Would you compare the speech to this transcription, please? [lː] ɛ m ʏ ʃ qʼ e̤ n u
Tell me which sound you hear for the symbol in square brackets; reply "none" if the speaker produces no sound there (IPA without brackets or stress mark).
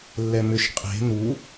lː